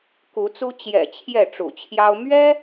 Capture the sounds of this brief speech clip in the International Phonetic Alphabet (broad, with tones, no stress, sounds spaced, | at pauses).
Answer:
k u˨˦ t͡s u˦ t͡ɕ j ɛ̰˨˩ t͡ɕʰ j ɛ˥˨ ʈ͡ʂ ṵ˨˩ t͡ɕʰ j ɑ˦ ʊ̯ m ɥ ɛ˦